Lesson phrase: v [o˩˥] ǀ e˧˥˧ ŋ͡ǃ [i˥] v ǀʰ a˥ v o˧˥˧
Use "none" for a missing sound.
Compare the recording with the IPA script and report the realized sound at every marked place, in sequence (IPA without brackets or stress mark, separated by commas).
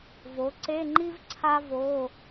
o˩˥, i˥